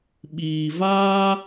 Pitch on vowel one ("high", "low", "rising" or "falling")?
low